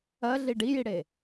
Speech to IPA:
ɜɮi ɖijiɽe

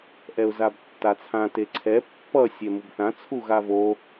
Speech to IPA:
ʔɛʊ̯zabtːat͡sʰã teǀʰɛ pːʌ sʲɛmubθã t͡sʰuɣavo

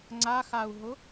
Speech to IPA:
ŋ͡ǀaxau̯ɦʊ

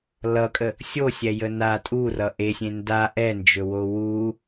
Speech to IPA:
lʌkʼə | sʲosʲɛjə na tʼurʌ ʔesʲẽ nda ʔɛnd͡ʒɵwo wu

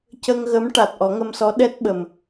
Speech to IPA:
cə˧ŋɣə˧˥mʈa˨˩t̚ ʔɔ˨˩˦ŋə˧msɔ˧˥ ɗɛ˦˥t̚ɓə˨˩m

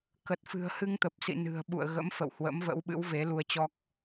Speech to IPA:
kə˨˩t̚fɨ̤˨˩ə̯hɨ˧ŋt̪ə˨˩p̚ sḭ˧˨nɨ̤˨˩ə̯ ɓṵ˧˨ə̯ɣə̰˧˥m fə̰˧˨whwə̰˧˥mvə̰˧˥w ɓɨ̰˧˥wve˨˦lu˧ə̯t͡ɕɔ˦˥k̚

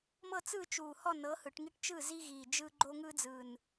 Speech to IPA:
mɤ˥˨t͡sɯː˥˨t͡ʃuː˨˩hɔ˥˨ nɤ˨˥hɯ˩˧ʈŋi˦ʈt͡ʃɯ˥˨ zi˦ɣiː˨˩d͡ʒɯ˦ ɡ͡ǃo˦ŋɯ˦d͡zɯː˨˩n

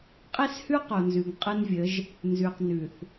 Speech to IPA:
qʼe˦shʉ˦ qo˨nzʉ˨ŋ qʼɯ˦nvʲə˨˦ʒ | nzʉ˨q nʉ˨θ

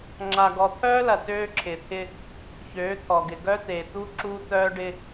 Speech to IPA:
ŋ͡ǁa˨ɡɔ˨t̪ʰœː˦lɐ˨ tøː˦ǁʰɪ˨t̪ʰɪ˦ | çøː˨˦t̪ʰɔ˨ɡɪ˨ ɡœ˦ t̪e˨t̪u˦ ǁu˦ t̪œː˦ɖɪ˦

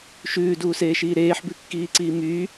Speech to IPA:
ʃʉːduːseːʃiː ɾeːħbʉkːiːǀiː myː

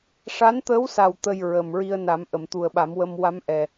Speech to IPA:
ʂa˧˥nt̪əː˧˥wsa˨˩w t̪ə˧j ɹə˨˩m ɹi˧ə̯na˨˩˦mʔə˨˩˨mt̪u˨˩ə̯ ɓa˨˩˦mwə˧m wa˧˥mʔɛ˨˩

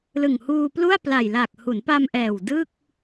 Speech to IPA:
lɯ˨˩ŋhuː˧plu˥˩a̯ pla˨˩jla˨˩k̚ hu˩˦npa˧mʔɛː˨˩w dɯ˥˩k̚

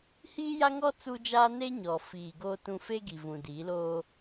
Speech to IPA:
hiː˦ja˦ŋɔ˦ t͡su˦d͡ʒaː˦ ne˦ɲɔ˨fiː˨ ɡoː˦tũ˦ fe˦ɡi˨ vũ˨diː˨˦loː˦

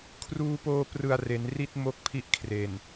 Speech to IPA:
kʰruː˧poː˧ prɯ˨˩a̯ re˩˦nri˥˩t̚ mo˥˩k̚pʰi˥˩ʔkʰre˨˩n

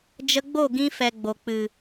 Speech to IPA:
d͡ʒə˧ɡ͡bo˦˨ɡĩ˧fɛ˨ ɡ͡bo˨ k͡pɨ˨

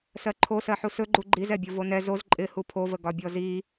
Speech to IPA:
sɜǃʰosɜħu sɵɡ͡ǃu ɡ͡ǃizɛbʲo vonɛ zoz ǃʼɪ hupʰovə ɡɒbʲɔzi

